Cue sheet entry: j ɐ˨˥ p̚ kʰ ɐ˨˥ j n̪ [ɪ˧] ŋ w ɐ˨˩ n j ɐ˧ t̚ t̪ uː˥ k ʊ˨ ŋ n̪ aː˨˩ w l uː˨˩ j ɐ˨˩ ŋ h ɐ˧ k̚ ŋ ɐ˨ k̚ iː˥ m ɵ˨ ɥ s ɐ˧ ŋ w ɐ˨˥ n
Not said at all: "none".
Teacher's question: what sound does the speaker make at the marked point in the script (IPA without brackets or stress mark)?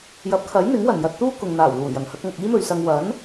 ɪ˨˥